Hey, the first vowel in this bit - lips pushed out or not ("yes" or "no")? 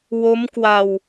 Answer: yes